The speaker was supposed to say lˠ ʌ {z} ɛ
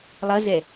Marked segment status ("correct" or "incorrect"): correct